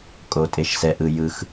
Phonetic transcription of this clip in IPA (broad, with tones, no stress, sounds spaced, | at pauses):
kʼ o˩ tʼ e˩ ʃ s ɛ˩ ʔ ɯ˩ j ɯ˩ x